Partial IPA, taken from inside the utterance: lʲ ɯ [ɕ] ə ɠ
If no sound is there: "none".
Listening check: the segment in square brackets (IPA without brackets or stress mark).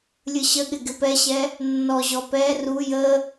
ɕ